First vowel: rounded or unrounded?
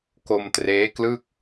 rounded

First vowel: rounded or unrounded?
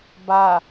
unrounded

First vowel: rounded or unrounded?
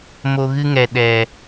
rounded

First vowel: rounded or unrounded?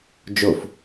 rounded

